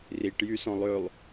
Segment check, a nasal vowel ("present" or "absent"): present